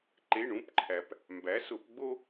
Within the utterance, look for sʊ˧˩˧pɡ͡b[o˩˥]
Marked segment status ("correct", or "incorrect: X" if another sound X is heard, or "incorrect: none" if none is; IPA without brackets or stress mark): incorrect: o˦